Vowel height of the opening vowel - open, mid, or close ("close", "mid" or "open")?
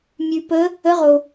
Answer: close